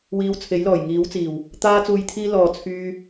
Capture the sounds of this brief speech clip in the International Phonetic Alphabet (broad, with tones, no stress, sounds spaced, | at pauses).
w iː˧ w t͡sʰ e˨˥ j l ɔː˨˩ j ŋ iː˨˥ w t͡s iː˨˩ w | t̪ aː˧ t͡s uː˨ j t̪ʰ iː˧ l ɔː˨ t͡sʰ yː˧